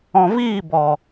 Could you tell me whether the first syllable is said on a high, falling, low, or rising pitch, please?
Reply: low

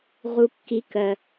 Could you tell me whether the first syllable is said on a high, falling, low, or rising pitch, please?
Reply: low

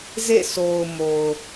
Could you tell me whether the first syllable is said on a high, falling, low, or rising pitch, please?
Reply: falling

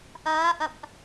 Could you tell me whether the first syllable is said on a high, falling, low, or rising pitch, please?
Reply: rising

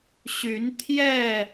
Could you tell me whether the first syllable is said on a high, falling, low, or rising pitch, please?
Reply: rising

